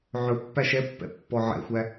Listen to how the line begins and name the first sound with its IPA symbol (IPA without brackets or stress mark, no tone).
ʕ